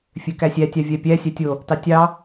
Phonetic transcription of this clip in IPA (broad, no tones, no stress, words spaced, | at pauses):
fʲøkæsʲæ tʲɑvʲæpʲæ sʲætʲo | tɑtʲɑ